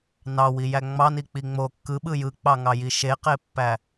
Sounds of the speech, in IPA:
n ɑ w i j æ ŋ͡m ɑ n i k͡p i ŋ͡m o kː ɯ ɓ ɯ j ɯ k͡p ɑ ŋ ɑ j i ʃ e q e pː æ

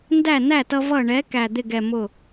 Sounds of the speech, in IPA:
n d æ˥˩ n æ˥˩ t ʌ˧ v ʌ˧˩ ɳ ɛ˩˥ k æ˧˩ d̪ ɪ˥˩ ɡ ɛ˧˩ m ʊ˥˩

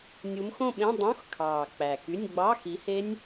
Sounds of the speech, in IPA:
nʲ u˨˦ m x õ˥˧ ɓ ẽ˧˥˧ dˤ õ˧˥˧ x kʰ ɑː˨˩ k͡p æ˨˩ k y˧˥˧ nʲ ɡ͡b ɑ˧˥˧ x i˨˦ h e˦˥ nʲ

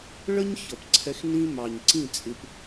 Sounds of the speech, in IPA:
ɭ ə˦ ɲ ç ʌ˨ p ǀʰ ɛ˧ x n ĩ˦ m ɑ˨ ɲ ǀ ĩ˦˨ t͡sʼ ɪ˧ p

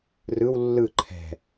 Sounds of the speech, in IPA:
r ɯ w lː ɯ ǃʰ ɛ̤

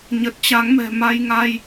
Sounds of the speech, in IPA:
ɲ ə˨˩ t̚ t͡ɕ a˨˦ ŋ m ɛ̤˨˩ m a˧ j ŋ a˧ j

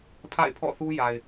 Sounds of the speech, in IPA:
pʰ a̰˦˨ ɪ̯ pʰ ɔ̰˦˨ θ u˦ j a˨ ɪ̯

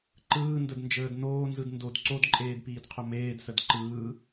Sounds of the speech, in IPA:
ǃ ɯː n d ə d n d͡ʒ əː d n oː n z ɯ d n d o d ǀ o d ǃʼ eː d p iː d qʰ ɵ m eː d s ə d ǃ ɯː

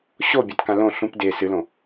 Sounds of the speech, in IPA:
ɕ o bʲ a t k ã l õ ɬ ũ p d e s ɨ l õ

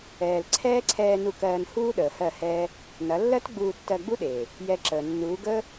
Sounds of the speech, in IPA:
ɛː˨ l ǀʰ ɛː˦ ǀʰ ɛː˧ n u˧ k ɜː˧ n h uː˦ ɗ əː˨ h ɜ˦˨ h ɛː˦ | n ɐ˨˦ lː ɜ˦ t ɡ͡b uː˧ tː ɜ˧ ɡ͡b u˦ ɗ eː˨ | j ɛ˧ ǁ əː˨ nː uː˨˦ ɡ əː˦

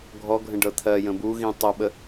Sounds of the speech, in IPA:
ɡʱ ɔ ɡʱ ə̃ ɖ ɤ t̪ʰ ɜ j ə̃ b u ɣ ĩ tˤ o ɓ ə

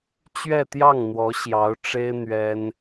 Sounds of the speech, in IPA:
t͡ɕ ɥ ɛ˥˧ t̪ j ɑ˥˩ ŋ n̪ w ɔ˧˥ ɕ j ɑ˧˥ ʊ̯ ʈ͡ʂ e˥ ɪ̯ n̪ ɥ ɛ˥ n

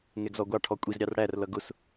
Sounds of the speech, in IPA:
ŋ ɛ ɡ z ɔ ɡʷ ɑ ʈʰ ɔ kʷʼ i z ɾʲ ɑ r ɽ æ r l ʌ ɡ ʊ s

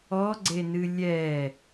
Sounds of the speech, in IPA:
ɔ ɡ͡ǀ e n ɨ lʲ ɛ

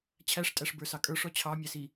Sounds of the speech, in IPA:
t͡ɕʰ æ ʂ tʼ æ ʂ b ə˞ s ɑ kʼ ə˞ ʂ ɔ t͡ɕʰ ɑ mʲ æ s i

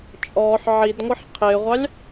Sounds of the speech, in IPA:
t͡ʃʼ ɔː ħ ʕ i d ŋʷ ʌ ħ qʰ ɪː ʁʷ ɑ lʲ

